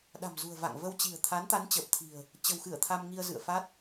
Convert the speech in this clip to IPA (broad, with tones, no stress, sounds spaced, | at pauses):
ɗ a̤˨˩ m z ṳ˨˩ ə̯ v a̰˧˨ ŋ v ə˧ w t͡ɕ i̤˨˩ ə̯ t̪ʰ a˨˦ n t̪ a˨˦ n t͡ɕ əː˨˩ p̚ t̪ʰ i̤˨˩ ə̯ | t͡ɕ ə̤˨˩ w x ɨ˧˩ ə̯ t̪ʰ a˧ m ŋ i˧ ə̯ z ɨ̰˧˨ ə̯ f a˦˥ t̚